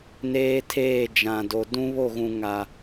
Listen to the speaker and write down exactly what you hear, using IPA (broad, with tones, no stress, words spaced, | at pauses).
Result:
neː˦tʰeː˦˨d͡ʒã˨ do˨dũ˦βo˦˨ɣũ˨ ŋa˨